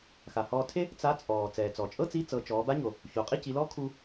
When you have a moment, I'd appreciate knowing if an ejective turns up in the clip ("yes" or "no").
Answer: yes